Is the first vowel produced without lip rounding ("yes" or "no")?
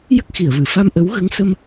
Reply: yes